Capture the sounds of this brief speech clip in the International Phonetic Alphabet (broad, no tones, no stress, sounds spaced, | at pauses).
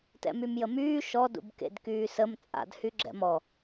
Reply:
t ɛ̰ m y m j ə m yː ʃ ɔ d ṵ b k ḛ d k yː s ə m t͡sʼ a̰ d h y ɡ͡ǁ ɛ̰ m ɔ